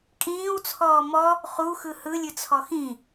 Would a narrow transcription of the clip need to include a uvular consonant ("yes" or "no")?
yes